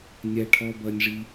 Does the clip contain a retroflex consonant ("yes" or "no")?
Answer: yes